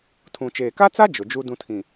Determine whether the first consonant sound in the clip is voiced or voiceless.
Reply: voiceless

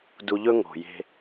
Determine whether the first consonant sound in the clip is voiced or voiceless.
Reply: voiced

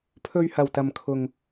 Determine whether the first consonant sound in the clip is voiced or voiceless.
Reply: voiceless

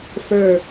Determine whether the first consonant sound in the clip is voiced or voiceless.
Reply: voiceless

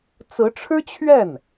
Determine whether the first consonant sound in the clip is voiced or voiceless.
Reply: voiceless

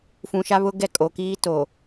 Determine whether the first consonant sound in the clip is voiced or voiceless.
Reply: voiceless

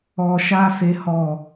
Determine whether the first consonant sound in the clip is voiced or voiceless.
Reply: voiceless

